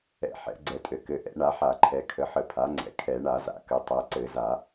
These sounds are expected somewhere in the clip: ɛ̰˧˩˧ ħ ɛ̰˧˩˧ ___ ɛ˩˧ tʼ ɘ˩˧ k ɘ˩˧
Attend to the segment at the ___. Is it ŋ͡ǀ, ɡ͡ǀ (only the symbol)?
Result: ɡ͡ǀ